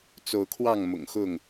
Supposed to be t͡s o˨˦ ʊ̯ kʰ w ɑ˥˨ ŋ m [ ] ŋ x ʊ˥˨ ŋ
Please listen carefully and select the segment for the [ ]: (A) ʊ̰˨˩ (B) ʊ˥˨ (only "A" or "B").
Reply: A